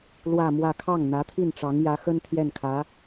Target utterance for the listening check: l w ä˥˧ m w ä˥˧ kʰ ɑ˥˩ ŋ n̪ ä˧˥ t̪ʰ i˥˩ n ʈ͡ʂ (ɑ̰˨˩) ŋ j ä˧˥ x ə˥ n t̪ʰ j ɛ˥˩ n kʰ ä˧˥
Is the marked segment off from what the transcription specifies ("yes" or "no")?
yes